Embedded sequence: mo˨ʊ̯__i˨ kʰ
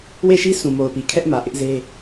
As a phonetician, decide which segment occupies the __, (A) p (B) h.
A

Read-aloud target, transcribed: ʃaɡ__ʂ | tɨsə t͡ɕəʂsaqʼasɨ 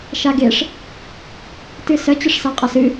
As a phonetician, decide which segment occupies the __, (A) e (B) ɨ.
A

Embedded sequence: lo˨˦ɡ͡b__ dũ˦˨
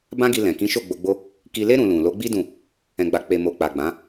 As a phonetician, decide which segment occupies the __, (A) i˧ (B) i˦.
B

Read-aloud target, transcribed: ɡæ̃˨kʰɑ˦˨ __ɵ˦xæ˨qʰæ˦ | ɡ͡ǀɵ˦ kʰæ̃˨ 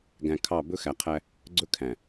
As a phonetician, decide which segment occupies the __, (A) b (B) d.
A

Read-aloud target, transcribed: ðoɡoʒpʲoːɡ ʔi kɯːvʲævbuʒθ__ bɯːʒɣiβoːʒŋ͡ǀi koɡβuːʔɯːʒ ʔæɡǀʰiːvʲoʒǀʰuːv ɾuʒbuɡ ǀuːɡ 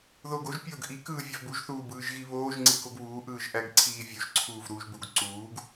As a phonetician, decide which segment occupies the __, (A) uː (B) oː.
A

